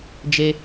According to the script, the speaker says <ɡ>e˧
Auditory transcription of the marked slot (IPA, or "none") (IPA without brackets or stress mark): d͡ʒ